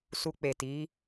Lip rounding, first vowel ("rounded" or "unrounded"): rounded